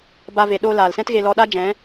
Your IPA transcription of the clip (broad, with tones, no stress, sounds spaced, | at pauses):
b a˧ v e˨ ɗ oː˧ l aː˨ l s ɛ̃˦ t ɣ e˧ l ɔ˧ ɗ a˦ d͡ʒ ɛ̃˨˦